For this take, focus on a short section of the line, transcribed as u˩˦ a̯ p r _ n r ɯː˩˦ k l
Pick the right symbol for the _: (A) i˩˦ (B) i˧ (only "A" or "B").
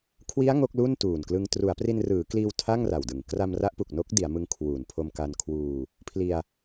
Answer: B